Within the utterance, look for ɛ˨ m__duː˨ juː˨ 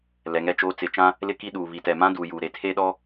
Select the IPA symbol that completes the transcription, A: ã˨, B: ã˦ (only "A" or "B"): B